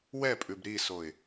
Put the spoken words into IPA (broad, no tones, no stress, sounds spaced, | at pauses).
w ɛ pʼ ʉ b ɾ i s o ɪ̯